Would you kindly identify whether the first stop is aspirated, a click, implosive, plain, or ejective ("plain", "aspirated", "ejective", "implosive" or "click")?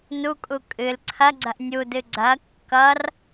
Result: ejective